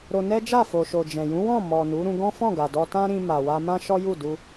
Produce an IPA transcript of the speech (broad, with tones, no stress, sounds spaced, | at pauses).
ɾ o˧ n ɛ˦ d͡ʒ a˦˨ f o˨ ʃ o˨ d͡ʒ ɛ̃˨ j ũ˨˦ w ɔ̃˦˨ m ɔ˨ n u˨˦ ɾ ũ˧ ɡ ɔ̃˦ f ɔ̃˦˨ ɡ a˨ d ɔ˧ t ã˦ ɾ ĩ˧ m a˨ w a˧ m ã˦ ʃ ɔ˦ j u˦˨ d u˧